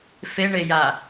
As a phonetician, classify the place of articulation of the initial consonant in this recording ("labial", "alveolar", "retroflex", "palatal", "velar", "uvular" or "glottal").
labial